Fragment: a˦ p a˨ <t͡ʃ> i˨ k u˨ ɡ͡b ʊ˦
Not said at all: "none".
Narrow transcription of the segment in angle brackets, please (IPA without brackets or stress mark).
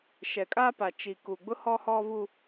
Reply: t͡ʃ